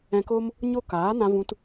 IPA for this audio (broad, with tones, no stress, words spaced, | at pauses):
ɛ̃˧ko˦m | ɲo˦ kaː˨˦nã˧vũ˧t